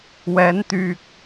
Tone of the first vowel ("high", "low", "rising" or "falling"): rising